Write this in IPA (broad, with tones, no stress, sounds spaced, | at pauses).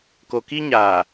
k o˨ k i˦ ɲ aː˨